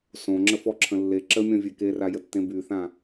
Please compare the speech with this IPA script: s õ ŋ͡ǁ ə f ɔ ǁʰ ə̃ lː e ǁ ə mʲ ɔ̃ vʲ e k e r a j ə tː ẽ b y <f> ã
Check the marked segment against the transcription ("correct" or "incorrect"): incorrect